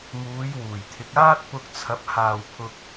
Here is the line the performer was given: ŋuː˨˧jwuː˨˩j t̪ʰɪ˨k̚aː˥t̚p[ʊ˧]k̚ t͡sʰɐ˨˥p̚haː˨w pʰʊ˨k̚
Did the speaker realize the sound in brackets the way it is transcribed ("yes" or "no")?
yes